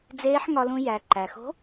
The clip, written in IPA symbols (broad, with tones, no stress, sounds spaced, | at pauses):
d͡z eː˧˥ ħ ŋ ɒ˧ l ũ˧ j æ˩ ǃ æ˩ x o̤˧˥